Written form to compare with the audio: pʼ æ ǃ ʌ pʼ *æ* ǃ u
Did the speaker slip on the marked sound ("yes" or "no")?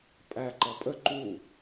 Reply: yes